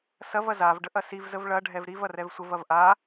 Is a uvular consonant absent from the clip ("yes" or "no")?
yes